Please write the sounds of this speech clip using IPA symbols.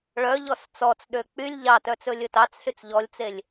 ɭ œ ʎ ɔ s t͡s ɔ t͡s ɗ ø k͡p y lʲ ʎ ɑ t œ t͡s ɵ lʲ ɵ t ɑ t͡s ɬ y t͡s ʎ ɔ lʲ t͡s e lʲ

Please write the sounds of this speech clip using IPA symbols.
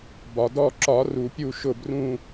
b ɒ˩ d ɔ˦˨ ǁ ɒ˨˩˦ r u˩ pʲ u˦˨ ʃ ʊ˦˨ b r ũ˦˨

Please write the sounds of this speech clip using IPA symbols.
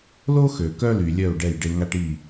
l o˦ x ø˨ k œ˦ l y˨ lʲ œ˦˨ u̯ ɖ ɛ˦˨ j ɖ e˧ ŋ a˦ ʈ i˦˨

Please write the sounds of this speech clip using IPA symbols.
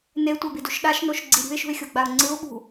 n e tʷ ɛ b i d u ʃ ɗ a ʃ n o ʃ ɡ͡ǀ i ɾʲ ṳ ɪ̯ ʃ ṳ ɪ̯ xʲ o ɡ͡b a ʊ̯ ŋ͡ǀ ɯ ʊ̯ ɓ ṳ

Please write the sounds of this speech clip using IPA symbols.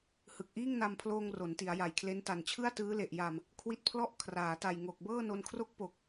h ɯ˨˩ k̚ ʔ iː˥˩ ŋ n a˧ m pʰ l oː˧ ŋ r o˩˦ n t i˩˦ a̯ j a˨˩ j kʰ l e˦˥ n t a˨˩ n t͡ɕʰ ɯ˥˩ a̯ t ɯː˦˥ l e˨˩ ʔ j a˨˩ m | kʰ w i˥˩ t̚ pʰ l ɔ˥˩ ʔ kʰ r aː˩˦ t a˨˩ j ŋ o˨˩ k̚ b ɤː˥˩ n o˧ n kʰ r o˥˩ k̚ p o˨˩ k̚

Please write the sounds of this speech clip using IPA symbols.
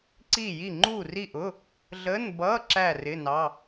ǀ iː˥˨ j i˥˨ ŋ͡ǃ uː˥˨ r i˥˨ ʔ ʊː˧˥˧ | ɮ ə˧˥˧ n b ʌː˧˥˧ ǁ æ˥˨ r ɪ˧˥˧ n ɑ˧˥˧

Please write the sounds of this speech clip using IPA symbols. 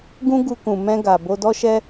ɡ ũ˦ ɡ u˧ k ũ˨ m ɛ̃˧ ɡ a˨ b o˧ d ɔ˦ ʃ ɛ˦

